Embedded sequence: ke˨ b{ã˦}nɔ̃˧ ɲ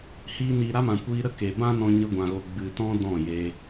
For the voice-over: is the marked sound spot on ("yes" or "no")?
yes